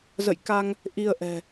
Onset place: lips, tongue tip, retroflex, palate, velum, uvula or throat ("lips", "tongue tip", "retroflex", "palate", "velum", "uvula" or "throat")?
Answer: tongue tip